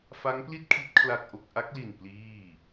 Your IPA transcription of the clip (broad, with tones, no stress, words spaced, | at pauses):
fa˦˥ŋpli˥˩t̚ kʰi˦˥t̚ kʰla˥˩k̚ʔo˥˩k̚ ʔa˦˥k̚li˨˩n pliː˥˩